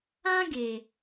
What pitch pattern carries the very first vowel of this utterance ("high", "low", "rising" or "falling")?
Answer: high